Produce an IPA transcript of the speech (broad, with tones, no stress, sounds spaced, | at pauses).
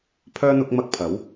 pʰ œː˥ n̪ ʊ˥ k̚ m ɐ˥ k̚ pʰ ɐ˨˥ w